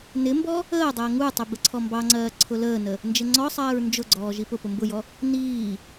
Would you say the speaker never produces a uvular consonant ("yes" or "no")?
yes